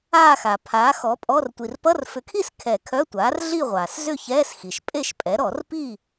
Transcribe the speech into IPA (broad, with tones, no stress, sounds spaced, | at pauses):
aː˥˨ x a˩ pʰ aː˩˥ x ɔ˩˥ pʼ ɔ˧˥˧ r tʷ i˩ r p ʌ˧˥˧ r f ʏ˩˥ kʰ i˥˨ s kʰ ɛ˨˩˦ kʰ œ˧˥˧ tʷ aː˩˥ r ɮ i˥˨ ʁʷ aː˩ s z ʏ˥˨ ç ɛː˧˥˧ s x i˩ ʃ pʼ e˥˨ ʃ pʼ ɛ˩˥ ɾ ɔ˨˩˦ r p i˥˨